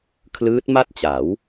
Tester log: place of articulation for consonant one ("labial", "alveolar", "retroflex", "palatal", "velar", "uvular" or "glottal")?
velar